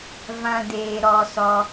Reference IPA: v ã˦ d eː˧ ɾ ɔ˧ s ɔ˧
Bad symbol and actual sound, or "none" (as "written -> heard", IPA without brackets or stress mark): none